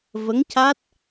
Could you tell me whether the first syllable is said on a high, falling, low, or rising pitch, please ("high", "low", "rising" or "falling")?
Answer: rising